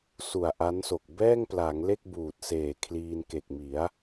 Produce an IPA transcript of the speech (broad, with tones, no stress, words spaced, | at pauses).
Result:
su˨˩a̯ ʔa˦˥nso˨˩k̚ bɛː˥˩ŋpla˩˦ŋ le˥˩k̚buː˨˩t̚seː˨˩ kʰliː˧nke˨˩k̚mi˩˦a̯